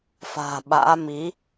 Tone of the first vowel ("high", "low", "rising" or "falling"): low